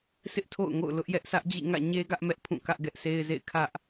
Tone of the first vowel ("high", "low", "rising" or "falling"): high